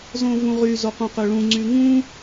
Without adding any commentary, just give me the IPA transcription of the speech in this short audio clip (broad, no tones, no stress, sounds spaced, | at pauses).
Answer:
z õ v ũ ʁ y z o q ũ q ø ɭ ũ ŋ͡ǀ y ŋ ũ